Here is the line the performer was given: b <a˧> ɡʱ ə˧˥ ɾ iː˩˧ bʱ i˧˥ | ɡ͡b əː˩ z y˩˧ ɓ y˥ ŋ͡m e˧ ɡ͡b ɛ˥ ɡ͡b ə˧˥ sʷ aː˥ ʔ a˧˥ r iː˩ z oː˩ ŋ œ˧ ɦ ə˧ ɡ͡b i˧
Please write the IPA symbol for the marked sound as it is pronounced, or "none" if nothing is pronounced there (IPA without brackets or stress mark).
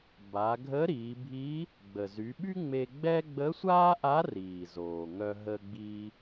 a˩˧